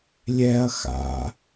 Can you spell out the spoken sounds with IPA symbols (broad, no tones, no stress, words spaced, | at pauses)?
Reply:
lʲɛɐ̯ xa̰